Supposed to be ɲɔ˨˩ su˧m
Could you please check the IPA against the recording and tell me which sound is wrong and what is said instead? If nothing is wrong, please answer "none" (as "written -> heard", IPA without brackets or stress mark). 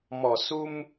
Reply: ɲ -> m